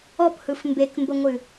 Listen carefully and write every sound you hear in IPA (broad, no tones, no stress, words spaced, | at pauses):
ɔphɯf mbekmbəŋʷɨ